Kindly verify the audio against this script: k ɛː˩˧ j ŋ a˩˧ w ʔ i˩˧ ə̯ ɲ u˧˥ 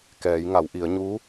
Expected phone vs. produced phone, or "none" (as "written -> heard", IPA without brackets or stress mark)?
none